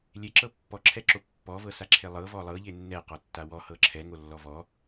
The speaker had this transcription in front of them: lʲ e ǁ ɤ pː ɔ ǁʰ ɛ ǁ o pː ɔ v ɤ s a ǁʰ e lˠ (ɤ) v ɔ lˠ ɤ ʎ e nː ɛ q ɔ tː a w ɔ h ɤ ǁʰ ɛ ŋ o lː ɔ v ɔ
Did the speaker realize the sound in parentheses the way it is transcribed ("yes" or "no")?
yes